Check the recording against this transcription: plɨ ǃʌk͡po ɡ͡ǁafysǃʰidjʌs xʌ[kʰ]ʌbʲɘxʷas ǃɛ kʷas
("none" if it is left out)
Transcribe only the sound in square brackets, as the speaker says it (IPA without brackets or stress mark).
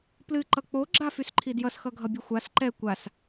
ɡʱ